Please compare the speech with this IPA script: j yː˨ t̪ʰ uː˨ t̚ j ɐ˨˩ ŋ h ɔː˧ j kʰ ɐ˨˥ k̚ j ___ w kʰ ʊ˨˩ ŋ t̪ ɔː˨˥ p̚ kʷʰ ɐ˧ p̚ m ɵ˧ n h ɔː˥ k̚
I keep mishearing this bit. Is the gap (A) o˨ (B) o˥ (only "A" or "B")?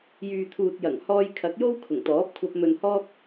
B